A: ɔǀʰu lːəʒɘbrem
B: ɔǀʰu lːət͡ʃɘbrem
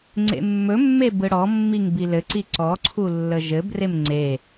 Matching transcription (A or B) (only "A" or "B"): A